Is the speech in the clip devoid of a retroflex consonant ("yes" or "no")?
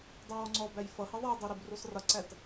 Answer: yes